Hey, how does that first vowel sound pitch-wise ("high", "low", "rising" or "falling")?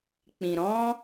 low